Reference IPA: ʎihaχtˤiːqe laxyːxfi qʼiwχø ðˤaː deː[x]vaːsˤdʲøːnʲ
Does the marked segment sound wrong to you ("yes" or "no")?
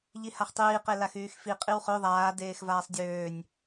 no